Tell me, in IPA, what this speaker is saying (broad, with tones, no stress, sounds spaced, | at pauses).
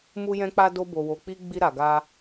m u˦ j ɛ̃˦ k͡p a˦ d o˦ b o˧ w o˧ k͡p i˦ ɡ͡b i˦ ɾ a˧ ɡ a˦